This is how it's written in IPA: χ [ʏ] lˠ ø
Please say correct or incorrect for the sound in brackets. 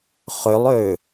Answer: correct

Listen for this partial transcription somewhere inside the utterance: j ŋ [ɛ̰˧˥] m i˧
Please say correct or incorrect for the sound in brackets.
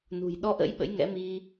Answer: correct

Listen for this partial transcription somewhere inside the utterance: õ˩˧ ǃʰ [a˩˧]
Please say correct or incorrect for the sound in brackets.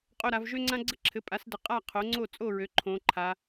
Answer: correct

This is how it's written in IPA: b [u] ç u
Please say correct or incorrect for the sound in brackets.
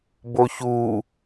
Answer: incorrect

